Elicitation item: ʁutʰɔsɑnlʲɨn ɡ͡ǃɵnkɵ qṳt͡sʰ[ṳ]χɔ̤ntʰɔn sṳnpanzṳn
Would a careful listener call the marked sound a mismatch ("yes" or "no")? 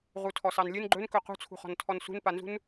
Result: no